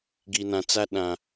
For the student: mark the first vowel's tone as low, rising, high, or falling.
low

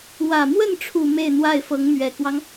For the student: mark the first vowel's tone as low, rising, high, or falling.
low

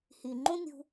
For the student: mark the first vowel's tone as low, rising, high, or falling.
low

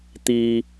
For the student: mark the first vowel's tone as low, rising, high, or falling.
low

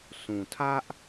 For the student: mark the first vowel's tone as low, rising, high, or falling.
low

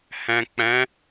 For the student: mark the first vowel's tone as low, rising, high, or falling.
low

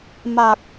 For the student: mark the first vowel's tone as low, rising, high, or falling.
low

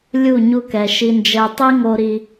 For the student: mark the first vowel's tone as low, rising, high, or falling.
falling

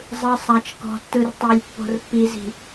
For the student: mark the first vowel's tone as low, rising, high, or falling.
low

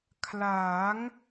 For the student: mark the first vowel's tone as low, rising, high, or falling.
rising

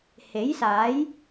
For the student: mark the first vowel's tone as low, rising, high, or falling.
rising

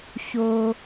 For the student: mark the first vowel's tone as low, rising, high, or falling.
low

